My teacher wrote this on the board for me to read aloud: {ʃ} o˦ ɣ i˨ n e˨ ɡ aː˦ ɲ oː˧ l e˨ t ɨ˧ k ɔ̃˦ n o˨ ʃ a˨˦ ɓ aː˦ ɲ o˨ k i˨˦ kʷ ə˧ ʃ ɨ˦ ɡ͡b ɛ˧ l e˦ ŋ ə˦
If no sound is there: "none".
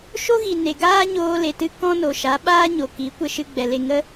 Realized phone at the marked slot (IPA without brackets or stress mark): ʃ